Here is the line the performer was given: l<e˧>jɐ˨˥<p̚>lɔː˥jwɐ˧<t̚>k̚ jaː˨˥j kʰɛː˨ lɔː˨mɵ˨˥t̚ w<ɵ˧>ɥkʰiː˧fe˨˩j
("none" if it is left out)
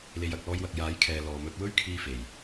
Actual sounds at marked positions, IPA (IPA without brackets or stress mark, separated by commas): e˧, k̚, none, ɵ˥